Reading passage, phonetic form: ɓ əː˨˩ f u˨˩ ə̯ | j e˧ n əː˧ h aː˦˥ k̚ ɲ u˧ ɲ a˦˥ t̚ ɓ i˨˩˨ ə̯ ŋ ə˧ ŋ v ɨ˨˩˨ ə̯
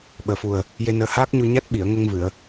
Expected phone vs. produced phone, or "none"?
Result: none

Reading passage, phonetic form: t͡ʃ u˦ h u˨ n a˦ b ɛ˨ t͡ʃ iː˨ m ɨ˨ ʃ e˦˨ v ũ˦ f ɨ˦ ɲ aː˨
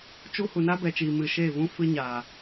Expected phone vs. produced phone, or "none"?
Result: none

